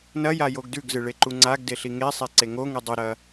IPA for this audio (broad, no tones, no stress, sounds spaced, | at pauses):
n ɐ j a j o ɡ d ʉ ɡ z ɨ ɭ e ǃ u ŋ͡ǀ a ɡ d e ɬ i ŋ e sˤ e ǀ e ŋ o ŋ ʉ dˤ ɨ ɾ ɐ